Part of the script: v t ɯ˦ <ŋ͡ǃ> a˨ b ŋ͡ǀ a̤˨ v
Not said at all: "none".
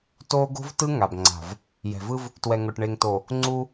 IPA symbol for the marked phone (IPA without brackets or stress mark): ŋ